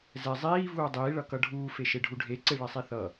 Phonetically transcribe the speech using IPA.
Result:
z ɛ zˤ iː v uː dˤ iː ɭ ʌ k ʌ ɖʱ uː f e ʃ e ɖʱ u ɖʱ e ǀ e ɭ ɛ sˤ i θ ʌ

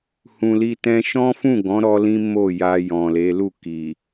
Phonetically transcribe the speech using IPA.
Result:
h ũ˨ l i˧ t ɛ̃˦ ʃ ɔ̃˦ f ũ˦˨ ɡ ɔ̃˨˦ ɾ ɔ˦ l ĩ˦ m o˦˨ j a˧ j ɔ̃˨ l e˨˦ l u˦˨ k i˨

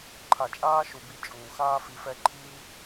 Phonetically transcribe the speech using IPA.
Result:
ǃʰ a˨ t͡ʃʼ aː˦ ʃ u˨ b i˧ t͡ʃʼ uː˨ x aː˦ f i˧ f ɛ˦ ǃʰ iː˦

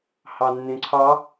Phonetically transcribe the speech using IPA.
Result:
h ɑ nː ẽ ǀʰ ɑ

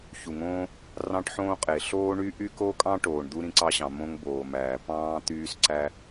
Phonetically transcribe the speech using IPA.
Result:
ç u˩ ŋ õː˥ | r ɑ̃˥ ʈ ħ õː˥ qʼ e˩ ɬ oː˥ ɳ y˥ ʔ y˥ k o˥ kʼ ɑ̃˥ ʈ oː˩ ɳ d̪ u˥ ɾ ĩ˥ ǀ ɑ˥ ɕ ɑ̃˩ m õ˥ ŋ b oː˩ m æː˩ p ɑ̃ː˥ t̪ yː˥ s ǀ æ˥

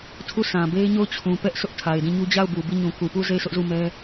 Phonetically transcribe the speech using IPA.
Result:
tʰ u˦˨ sʰ ã˨ b e˦ ɪ̯ ɲ o˦˨ ʊ̯ t͡ɕʰ ũ˨ p ɛ˦ ʔ sʰ ʊ˦ ʔ tʰ a˨ ɪ̯ d ĩ˦˨ ɲ u˦ d͡ʑ a˦˨ ʊ̯ b u˨ b i˦˨ ɲ ũ˨ k u˨ p u˦˨ z e˦˨ ɪ̯ sʰ ʊ˦ ʔ z u˦˨ m ɛ˦

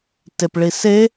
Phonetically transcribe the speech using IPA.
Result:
t e p ɭ i s e

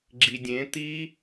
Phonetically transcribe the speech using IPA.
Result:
ɡ͡ǁ i dʲ ẽ t̪ i

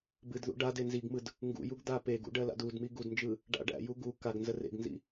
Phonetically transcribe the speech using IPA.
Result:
b ɨ d ð ṵ ɖ a d e n z i ɡ m ɯ d | ŋ ɡ ṵ j u ɡ d̪ a p e ɡ ṵ ɖ ɜ l a̰ d u d m i ɡ u d n d͡ʒ ɯ | ɖ a̰ ɖ æ̰ j u ɡ u k a ɡ n z ə r ḛ ɡ n z ḭ

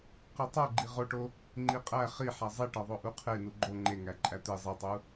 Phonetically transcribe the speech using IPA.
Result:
q i tˤ o ɡ͡ǃ i ʁ o ʈ o | ŋ͡ǃ i qʼ æ χ i ħ æ zˤ e ʈ ɒ ðˤ o ʔ u qʰ e n u ɡ͡ǃ o ŋ͡ǃ e ŋ æ ǃʼ æ t̪ e zˤ i tˤ u

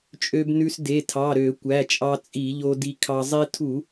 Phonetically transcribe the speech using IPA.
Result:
t͡ʃʼ ø˧ b n ʉ˧ s d e˩˧˩ tʰ ɑ˩˧˩ ɾ ø˧˩˧ kʷ æ˩˧˩ t͡ʃʼ ɑ˧ t͡sʼ i˧˩˧ ʎ o˧ d i˧ kʰ ɑ˧ zˤ i˧ tʰ u˧˩˧

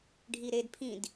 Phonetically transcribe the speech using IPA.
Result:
ɖʱ i ɾ e d pʰ ĩ d

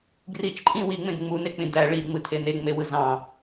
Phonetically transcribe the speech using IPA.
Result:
ɡ r i t͡ʃ ǃʼ ĩ w i ŋ͡m ẽ ɡ ŋ͡m u n e k͡p ĩ d æ ɭ i ŋ͡m ɯ tʰ e n e ŋ͡m e w ɯ z ɑ̃

